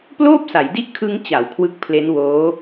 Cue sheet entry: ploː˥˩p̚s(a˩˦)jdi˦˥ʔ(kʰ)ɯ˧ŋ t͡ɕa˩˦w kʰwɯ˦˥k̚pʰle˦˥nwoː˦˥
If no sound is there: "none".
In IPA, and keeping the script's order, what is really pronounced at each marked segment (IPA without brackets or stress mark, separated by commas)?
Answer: a˩˦, kʰ